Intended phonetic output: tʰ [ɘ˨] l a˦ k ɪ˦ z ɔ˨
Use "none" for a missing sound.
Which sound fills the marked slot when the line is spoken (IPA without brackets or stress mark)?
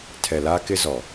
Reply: ɛ˨